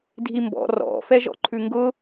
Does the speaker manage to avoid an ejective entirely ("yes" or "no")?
yes